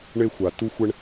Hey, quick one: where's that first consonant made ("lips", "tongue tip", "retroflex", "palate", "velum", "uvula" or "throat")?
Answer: retroflex